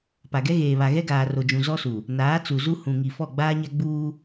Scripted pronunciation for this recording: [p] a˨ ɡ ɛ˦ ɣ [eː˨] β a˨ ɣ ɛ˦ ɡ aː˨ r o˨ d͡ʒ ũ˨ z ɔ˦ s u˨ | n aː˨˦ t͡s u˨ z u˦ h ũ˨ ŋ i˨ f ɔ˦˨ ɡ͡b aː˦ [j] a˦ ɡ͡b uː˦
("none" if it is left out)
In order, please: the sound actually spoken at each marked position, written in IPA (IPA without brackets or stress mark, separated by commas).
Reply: p, eː˨, ɲ